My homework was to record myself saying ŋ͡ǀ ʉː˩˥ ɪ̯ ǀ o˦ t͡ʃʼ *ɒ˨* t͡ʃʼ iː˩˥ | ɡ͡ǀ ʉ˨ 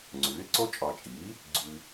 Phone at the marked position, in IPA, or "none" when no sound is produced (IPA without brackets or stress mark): ɒ˨